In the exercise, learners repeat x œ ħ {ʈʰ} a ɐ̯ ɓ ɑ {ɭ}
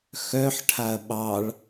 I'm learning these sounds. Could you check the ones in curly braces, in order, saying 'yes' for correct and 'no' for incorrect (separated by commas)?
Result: yes, yes